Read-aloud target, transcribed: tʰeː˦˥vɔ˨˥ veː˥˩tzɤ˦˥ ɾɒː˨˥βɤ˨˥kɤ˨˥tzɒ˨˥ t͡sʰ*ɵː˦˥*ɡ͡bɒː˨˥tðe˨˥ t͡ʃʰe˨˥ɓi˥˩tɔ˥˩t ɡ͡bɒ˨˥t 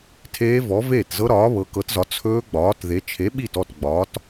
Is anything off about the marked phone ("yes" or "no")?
no